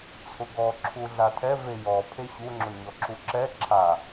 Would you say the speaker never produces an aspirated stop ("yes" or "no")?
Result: no